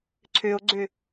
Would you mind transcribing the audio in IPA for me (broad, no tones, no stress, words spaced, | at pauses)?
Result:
ǀʰøo̯ɡ͡ǀø